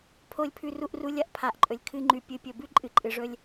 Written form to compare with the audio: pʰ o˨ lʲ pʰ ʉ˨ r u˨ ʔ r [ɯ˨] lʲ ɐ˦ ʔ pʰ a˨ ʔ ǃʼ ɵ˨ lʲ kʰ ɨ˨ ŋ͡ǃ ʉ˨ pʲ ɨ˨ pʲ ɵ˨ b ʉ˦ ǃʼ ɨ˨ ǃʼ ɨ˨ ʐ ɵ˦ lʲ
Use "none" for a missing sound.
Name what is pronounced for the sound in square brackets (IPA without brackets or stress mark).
u˨